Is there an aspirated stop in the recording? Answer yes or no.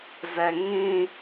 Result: no